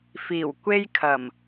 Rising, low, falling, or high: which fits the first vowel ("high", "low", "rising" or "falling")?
low